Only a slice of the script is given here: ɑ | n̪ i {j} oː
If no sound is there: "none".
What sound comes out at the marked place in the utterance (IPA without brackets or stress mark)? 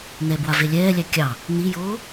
j